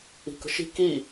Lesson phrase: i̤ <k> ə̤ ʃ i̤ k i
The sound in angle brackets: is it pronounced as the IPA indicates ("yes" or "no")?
yes